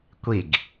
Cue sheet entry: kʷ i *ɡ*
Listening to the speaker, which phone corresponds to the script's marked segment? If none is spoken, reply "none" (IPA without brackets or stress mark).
ɡ